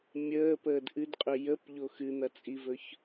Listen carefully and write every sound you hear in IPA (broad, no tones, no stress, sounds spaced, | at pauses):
mʲ əː p əː d ʔ ɨ d qʼ ɵ j ə p ʎ o x ɨ n̪ ɐ t͡sʼ i v ɵ ç